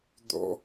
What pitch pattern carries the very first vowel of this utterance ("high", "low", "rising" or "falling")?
high